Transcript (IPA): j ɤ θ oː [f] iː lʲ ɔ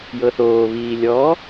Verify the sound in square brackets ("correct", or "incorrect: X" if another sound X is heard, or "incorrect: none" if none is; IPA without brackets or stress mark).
incorrect: β